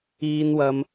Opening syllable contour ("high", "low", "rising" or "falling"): low